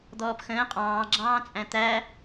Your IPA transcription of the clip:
d̪ ɔː p x ə̃ː qʼ ɑ̃ː ɡ͡ǁ ɑ̃ː t͡sʼ æ̃ t̪ æ

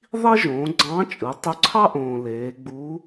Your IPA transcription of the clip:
ðˤ i˥ ʒ õː˩˧ ɡ͡ǀ ɑ̃ː˧˥ t͡ʃʼ ɯ˩˧ tˤ ø˧ ǀʰ ɑ˥ ʔ õː˩ l eː˩˧ ɡ͡b u˧˥

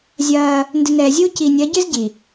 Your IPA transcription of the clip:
zʲ ɐː˦ | n d ɨ˨ n ɛː˨ zʲ uː˦ c iː˨ nʲ ɐː˨˦ ɟ ɨː˦ z ɟ i˨

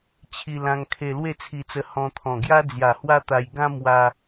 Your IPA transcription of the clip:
t͡ɕʰ i˧ l ã˧ ŋ kʰ e˧ l w e˥˧ t͡sʰ i˧ t͡s ə˧ h ɔ̃˧ t̪ʰ ɔ̃˨˩ ɡ j a˦ d͡z j a˨˩ h w a˦ t̪ a˧ j ɡ ã˦ m w a˧

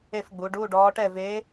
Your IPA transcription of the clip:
e˥˨ f ɡ͡b u˩˧ ɖ uː˧˥˧ ɖ ɔː˧˥ ʈ ɛ˥˨ v e˧˥

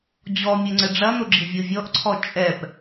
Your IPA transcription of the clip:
d͡ʑ ɔ mʲ ɘ ŋ͡ǀ ɘ ɖ͡ʐ ɐ n o ɡ͡ǁ i vʲ o vʲ ɔ ʔ ǀʰ ɔ t͡ʃʼ ɛ p

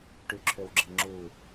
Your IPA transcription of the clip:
ʈ y ǁʰ ø w ɡ͡ǁ e ŋ͡ǁ uː

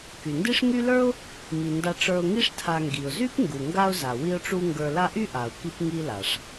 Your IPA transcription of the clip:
k y˩ n d i˥ ʂ ŋ y˦ l ə˞˥ ʊ̯ | m i˩ n d a˨ ʈ͡ʂ ə˞˨ ʊ̯ ŋ i˦ ʂ tʰ a˨ ŋ ɡ i˩ ʊ̯ z y˥ p ŋ ɡ u˩ ŋ ɡ a˦ ʊ̯ z a˩ w i˦ ʊ̯ ʈ͡ʂ u˦ ŋ ɡ ə˞˨ l a˦ ʔ y˥ ʔ a˩ ʊ̯ k i˦ p ŋ i˦ l a˩ ʂ

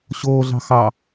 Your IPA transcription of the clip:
ɕ oː ɮ ɑ̤ x ɑ

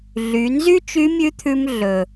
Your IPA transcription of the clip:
ɮ y˩˧ n z y˥ t͡ʃ y˧˥ mʲ ʉ˧˥ t̪ʰ ʉ˧ m ɮ ɵ˩

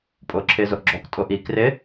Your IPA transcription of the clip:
pʼ ʊː ǁʰ ɪː z ʊ ʔ ɡ͡ǁ ɔ k tʼ ʊ ʔ i k r ɪ

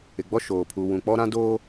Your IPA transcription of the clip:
ɪ˨ ɡ͡b ɔ˦ ʃ oː˨ pʰ uː˨ w ũ˨ k͡p ɔ˦ ɾ ã˦ d oː˦

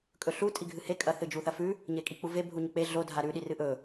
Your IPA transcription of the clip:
kʼ ɵ ɬ u tʼ i ɡʱ ɨ h e kʼ ɐ θ ɨ d͡ʒ u θ ɐ f ʉ | ɲ e kʼ i k͡p u v e bʱ u ɲ ɵ k͡p e ɮ o dʱ a ɾ ʉ ɗ i r ɨ ʔ ɵ

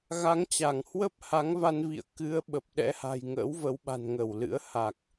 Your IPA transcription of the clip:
ɣ a˨˦ ŋ t͡ɕ a˧˩ ŋ h w ə˦˥ p̚ h a˨˦ ŋ v a˧ n v ḭ˧˨ ə̯ k ɨ˨˦ ə̯ ɓ ə˨˩ p̚ ɗ ɛ̰˧˥ h a̤˨˩ j ŋ ə̰ː˧˥ w v ə˨˦ w ɓ a̤˨˩ n ŋ ə˧˩ w l ɨ̰˧˥ ə̯ h a˨˩ k̚

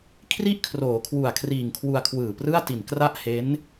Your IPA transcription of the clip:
kʰ r i˥˩ ʔ kʰ r oː˩˦ kʰ w u˨˩ a̯ kʰ r iː˨˩ ŋ kʰ w u˧ a̯ kʰ w ɯː˨˩ p r ɯ˥˩ a̯ t i˨˩ n k r a˥˩ ʔ h e˦˥ n

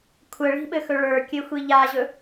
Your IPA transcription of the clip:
kʷʰ ə ɭ i̤ ɓ ɘ x ɵ ɭ ə˞ kʲ ɘ xʷ i ʎ a ʑ ɵ

